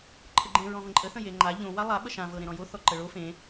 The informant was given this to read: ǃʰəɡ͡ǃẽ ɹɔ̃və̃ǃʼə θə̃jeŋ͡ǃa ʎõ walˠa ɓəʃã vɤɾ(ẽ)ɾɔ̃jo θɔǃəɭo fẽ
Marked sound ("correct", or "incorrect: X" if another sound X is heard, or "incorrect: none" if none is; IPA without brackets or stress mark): correct